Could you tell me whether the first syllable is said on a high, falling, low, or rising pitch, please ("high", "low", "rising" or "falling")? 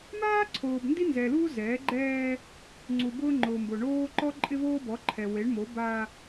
high